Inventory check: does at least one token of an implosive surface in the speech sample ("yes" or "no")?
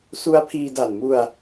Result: no